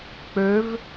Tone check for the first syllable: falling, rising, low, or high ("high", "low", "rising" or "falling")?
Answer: rising